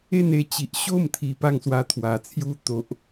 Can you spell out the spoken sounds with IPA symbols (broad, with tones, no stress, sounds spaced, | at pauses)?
e˥˧ n e˧ t͡ɕ i˨ ʔ ɕ o˥˧ m t̪ʰ i˨˩ p a˥˧ ŋ s w a˧ t̪ʰ w a˨˩ t͡sʰ j u˦ t̪ o˨ ʔ